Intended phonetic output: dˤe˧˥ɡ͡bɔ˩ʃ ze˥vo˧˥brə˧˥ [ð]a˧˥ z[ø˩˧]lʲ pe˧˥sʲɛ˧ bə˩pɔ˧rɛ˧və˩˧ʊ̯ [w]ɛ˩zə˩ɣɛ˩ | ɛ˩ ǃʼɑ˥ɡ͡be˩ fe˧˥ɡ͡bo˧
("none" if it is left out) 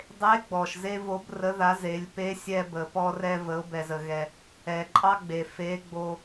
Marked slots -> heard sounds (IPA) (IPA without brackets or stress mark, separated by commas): ð, e˩˧, b